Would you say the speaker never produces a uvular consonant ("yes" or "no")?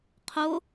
no